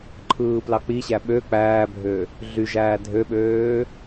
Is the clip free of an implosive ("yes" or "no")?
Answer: no